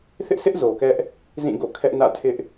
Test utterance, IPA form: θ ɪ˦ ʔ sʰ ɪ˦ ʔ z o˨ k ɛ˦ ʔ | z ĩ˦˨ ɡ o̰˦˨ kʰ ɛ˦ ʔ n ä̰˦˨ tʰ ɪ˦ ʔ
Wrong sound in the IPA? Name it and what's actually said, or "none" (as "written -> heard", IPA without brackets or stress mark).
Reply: none